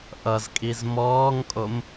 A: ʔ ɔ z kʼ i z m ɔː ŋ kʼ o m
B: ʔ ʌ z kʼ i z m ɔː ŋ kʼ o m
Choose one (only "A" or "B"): B